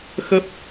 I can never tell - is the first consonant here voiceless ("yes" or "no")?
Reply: yes